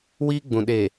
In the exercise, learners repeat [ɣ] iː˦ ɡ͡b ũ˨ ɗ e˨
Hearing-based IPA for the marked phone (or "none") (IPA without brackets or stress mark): w